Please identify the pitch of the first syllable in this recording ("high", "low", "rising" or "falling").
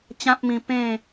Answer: high